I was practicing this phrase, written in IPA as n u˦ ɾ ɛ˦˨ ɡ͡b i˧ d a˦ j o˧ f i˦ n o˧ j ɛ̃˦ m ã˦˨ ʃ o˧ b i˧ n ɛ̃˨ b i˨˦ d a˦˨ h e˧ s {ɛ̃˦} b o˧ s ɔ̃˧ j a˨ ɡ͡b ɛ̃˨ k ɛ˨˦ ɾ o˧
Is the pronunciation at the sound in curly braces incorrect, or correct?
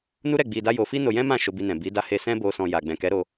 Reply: correct